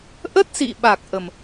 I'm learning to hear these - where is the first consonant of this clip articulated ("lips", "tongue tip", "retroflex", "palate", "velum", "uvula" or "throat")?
throat